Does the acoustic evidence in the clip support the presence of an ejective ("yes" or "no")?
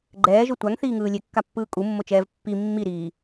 yes